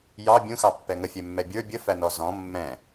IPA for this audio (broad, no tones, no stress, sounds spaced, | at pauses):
j ɑ bʲ ũ x ɑ pː ɛ ŋ ə fʲ ɛ mː ɛ bʲ ə˞ bʲ ə f æ n ɔ z ɔ̃ mː ɛ̃